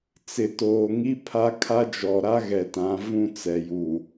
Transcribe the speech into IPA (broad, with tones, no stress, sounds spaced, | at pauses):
t͡s ɪ˨ t oː˨ ŋ i˦ pʰ a˦ kʰ a˦ d͡ʒ ɔ˨ ɾ a˦ ɣ ɛ˨ t ã˨˦ v ũ˦˨ t͡s ɛ˨ j u˨